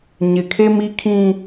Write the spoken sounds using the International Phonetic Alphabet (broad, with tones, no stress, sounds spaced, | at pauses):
ɲ ɪ˨ kʰ e˦ m i˦ kʰ ĩ˦